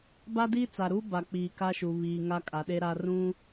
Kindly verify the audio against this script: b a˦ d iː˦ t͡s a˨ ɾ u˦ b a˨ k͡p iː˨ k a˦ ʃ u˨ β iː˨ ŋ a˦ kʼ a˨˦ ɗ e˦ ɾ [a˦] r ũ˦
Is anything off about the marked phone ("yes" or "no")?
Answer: no